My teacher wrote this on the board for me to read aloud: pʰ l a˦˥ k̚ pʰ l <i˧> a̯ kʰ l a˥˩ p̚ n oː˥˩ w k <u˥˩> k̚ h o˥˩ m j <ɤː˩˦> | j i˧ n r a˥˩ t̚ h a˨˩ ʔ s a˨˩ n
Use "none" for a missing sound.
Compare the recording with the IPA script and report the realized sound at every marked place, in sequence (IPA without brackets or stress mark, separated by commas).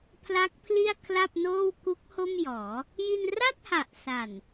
i˥˩, u˦˥, ɔː˩˦